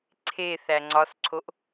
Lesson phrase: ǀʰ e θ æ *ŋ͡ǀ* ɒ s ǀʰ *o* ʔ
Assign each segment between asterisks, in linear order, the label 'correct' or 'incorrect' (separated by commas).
correct, correct